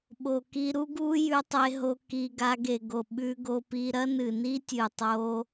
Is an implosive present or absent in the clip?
present